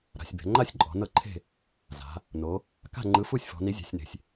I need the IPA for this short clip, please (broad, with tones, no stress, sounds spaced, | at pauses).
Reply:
ɾ a̤˩˧ sʲ b ɛ̤˩˧ ŋ͡ǃ a˥˨ sʲ ǃʼ ɔ̤˩˧ n ɤ˥˨ ǃʰ e̤˥˨ | z a̤˩˧ | n o˩˧ | k a̤˥˨ ŋ͡ǃ ɯ˨˥ f u˥˨ sʲ f ɔ̤˩˧ n i˨˥ zʲ ɛ̤˩˧ sʲ n e̤˩˧ sʲ